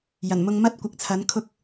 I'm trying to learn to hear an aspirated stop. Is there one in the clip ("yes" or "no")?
yes